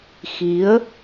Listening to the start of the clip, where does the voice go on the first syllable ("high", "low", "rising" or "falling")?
rising